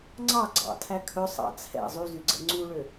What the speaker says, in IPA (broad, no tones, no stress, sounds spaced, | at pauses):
ŋ͡ǀ ɑ ɡ͡ǀ ɑ̰ tʰ æ kʰ ɵ sˤ ɑ̰ t͡sʰ ɛ̰ zˤ y z y ɡ͡ǀ ɛ̰ ŋ͡ǀ u ɭ ø